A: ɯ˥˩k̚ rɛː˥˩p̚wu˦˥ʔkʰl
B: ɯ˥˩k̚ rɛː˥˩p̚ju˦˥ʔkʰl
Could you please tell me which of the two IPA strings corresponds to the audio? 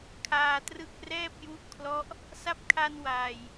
B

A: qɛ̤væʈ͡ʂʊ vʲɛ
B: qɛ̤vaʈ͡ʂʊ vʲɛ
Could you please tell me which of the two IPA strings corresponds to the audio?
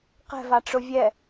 B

